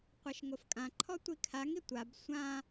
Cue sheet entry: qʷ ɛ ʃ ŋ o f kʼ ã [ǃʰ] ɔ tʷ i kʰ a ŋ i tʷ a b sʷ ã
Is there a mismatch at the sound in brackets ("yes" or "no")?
no